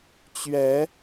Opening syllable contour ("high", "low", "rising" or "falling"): rising